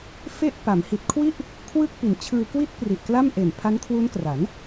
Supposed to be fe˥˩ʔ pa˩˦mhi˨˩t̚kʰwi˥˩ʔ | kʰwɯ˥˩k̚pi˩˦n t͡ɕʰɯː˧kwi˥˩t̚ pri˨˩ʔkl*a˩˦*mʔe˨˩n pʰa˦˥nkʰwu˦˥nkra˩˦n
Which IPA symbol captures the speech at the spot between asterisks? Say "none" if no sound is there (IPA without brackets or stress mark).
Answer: a˥˩